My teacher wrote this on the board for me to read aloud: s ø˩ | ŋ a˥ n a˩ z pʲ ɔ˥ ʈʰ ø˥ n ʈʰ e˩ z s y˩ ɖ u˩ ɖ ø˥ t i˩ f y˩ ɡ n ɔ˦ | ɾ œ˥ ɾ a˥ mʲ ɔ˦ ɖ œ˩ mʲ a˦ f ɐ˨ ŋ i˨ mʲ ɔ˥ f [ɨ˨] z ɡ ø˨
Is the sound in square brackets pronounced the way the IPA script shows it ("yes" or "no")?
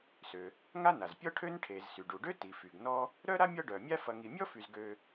no